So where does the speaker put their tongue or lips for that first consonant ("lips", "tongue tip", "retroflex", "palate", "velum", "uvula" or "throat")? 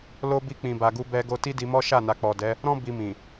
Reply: tongue tip